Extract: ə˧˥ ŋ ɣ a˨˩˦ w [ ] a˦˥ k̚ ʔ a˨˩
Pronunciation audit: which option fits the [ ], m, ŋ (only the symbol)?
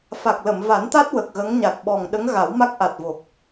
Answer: m